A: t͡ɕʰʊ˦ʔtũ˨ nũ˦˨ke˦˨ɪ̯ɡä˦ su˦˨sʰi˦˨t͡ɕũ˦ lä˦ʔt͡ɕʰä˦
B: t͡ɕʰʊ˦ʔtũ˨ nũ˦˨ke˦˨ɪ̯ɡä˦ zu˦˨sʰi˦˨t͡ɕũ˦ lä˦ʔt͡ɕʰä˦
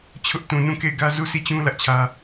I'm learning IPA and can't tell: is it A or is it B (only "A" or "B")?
B